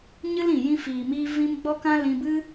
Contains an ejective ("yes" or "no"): no